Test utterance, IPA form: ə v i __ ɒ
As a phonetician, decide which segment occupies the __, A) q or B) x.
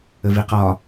A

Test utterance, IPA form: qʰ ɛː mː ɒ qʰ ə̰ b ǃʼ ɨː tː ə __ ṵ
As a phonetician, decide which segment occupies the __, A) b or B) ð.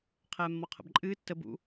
A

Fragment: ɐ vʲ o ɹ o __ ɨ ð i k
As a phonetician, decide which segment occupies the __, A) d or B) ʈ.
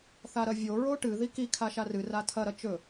B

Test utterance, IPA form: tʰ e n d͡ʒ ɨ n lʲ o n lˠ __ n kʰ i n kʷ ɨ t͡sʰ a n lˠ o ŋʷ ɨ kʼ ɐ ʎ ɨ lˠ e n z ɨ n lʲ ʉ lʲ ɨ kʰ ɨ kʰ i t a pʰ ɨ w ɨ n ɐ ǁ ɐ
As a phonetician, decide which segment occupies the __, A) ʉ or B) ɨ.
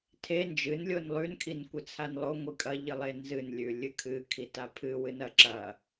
A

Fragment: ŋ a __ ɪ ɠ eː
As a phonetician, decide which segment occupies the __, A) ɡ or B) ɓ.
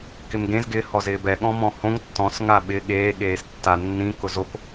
B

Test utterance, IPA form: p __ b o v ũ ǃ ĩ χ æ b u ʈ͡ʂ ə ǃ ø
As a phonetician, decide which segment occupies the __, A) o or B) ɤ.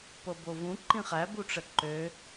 B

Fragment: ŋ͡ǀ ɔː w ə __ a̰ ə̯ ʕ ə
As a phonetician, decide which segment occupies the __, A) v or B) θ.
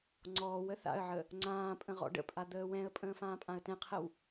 B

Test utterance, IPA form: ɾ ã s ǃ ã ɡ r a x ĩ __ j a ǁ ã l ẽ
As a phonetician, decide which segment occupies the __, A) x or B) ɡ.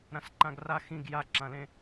B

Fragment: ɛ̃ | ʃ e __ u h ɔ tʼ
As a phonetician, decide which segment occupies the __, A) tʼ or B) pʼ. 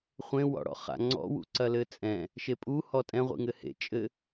B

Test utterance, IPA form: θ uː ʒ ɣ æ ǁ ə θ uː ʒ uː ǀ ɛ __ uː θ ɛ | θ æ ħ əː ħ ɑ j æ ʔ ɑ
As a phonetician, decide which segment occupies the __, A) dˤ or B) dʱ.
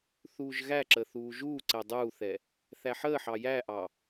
A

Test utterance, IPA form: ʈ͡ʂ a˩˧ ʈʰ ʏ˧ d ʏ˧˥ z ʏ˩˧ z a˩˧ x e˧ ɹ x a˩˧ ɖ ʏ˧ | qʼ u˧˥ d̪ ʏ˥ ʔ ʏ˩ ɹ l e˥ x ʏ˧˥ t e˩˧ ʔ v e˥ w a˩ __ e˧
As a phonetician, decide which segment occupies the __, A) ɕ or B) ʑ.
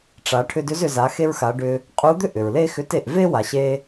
A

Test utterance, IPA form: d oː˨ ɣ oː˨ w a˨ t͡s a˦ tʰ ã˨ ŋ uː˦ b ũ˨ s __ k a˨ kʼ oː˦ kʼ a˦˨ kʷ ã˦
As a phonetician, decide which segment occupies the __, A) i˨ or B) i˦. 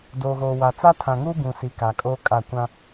A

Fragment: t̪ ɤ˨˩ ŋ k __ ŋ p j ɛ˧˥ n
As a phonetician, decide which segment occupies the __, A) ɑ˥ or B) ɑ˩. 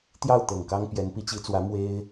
A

